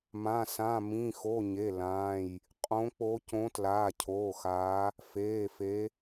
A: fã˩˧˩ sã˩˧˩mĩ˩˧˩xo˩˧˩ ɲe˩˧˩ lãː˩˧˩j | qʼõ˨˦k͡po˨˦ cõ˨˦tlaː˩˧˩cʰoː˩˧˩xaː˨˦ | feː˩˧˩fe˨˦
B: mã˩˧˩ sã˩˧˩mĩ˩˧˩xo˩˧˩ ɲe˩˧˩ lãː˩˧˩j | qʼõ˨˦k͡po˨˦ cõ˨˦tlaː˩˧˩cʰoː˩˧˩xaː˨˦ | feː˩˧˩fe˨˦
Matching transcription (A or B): B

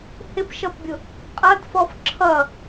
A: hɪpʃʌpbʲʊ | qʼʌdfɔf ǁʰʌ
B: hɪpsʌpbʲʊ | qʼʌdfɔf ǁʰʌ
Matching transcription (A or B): A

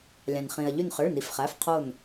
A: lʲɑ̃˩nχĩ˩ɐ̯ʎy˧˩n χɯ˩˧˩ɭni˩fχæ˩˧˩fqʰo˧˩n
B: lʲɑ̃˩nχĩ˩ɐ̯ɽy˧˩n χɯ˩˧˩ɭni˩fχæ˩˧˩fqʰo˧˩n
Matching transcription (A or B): A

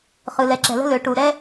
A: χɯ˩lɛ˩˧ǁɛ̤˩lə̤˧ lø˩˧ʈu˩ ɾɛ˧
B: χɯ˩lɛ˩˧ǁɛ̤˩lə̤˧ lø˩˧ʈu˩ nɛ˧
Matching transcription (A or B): A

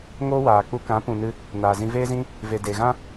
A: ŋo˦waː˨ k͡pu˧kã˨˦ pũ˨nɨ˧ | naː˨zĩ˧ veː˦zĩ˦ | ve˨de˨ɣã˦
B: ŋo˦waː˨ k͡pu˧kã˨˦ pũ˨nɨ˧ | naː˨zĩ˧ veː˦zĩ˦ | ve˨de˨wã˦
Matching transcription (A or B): A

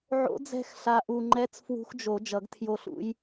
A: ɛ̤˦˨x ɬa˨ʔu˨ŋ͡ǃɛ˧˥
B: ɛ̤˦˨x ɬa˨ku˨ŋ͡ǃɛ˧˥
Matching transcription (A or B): A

